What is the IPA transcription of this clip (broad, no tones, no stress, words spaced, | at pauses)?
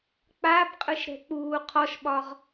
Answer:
k͡pabqʼɯʃɾɛ̤k͡puː qʰɔʃɓɒʁ